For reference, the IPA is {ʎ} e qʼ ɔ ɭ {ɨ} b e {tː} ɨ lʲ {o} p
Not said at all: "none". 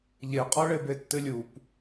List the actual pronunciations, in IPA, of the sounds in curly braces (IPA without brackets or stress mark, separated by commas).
ʎ, e, tː, u